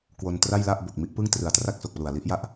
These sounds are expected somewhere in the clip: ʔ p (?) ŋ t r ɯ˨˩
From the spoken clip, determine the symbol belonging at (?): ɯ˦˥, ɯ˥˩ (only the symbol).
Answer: ɯ˥˩